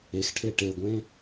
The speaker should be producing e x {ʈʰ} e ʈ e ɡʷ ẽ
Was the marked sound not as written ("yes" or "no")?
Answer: no